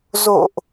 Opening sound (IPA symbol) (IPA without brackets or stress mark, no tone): z